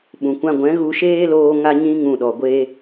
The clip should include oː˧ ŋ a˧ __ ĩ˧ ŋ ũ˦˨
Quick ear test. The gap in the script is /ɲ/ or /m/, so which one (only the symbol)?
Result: ɲ